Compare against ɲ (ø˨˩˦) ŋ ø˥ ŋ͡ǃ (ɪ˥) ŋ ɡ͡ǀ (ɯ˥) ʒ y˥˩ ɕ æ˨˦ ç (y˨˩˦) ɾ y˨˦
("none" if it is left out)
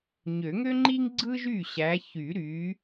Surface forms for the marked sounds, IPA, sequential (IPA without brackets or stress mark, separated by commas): ø˨˩˦, i˥, ɯ˥, y˨˩˦